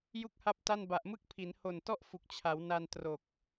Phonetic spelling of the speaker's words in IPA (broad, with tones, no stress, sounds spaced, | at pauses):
j u˥˩ k̚ h a˥˩ p̚ t a˥˩ n b a˨˩ ʔ m ɯ˥˩ k̚ pʰ i˩˦ n h o˨˩ n t ɔ˥˩ ʔ f u˨˩ k̚ t͡ɕʰ a˩˦ w n a˧ n t r o˨˩ k̚